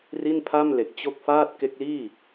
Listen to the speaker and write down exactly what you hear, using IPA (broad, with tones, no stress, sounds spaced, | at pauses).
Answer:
r i˥˩ n pʰ a˥˩ m l e˨˩ k̚ t͡ɕ o˦˥ k̚ f aː˥˩ t̚ k e˦˥ k̚ l iː˥˩